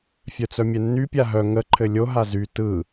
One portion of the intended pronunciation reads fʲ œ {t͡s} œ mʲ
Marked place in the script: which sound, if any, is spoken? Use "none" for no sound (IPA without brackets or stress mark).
t͡s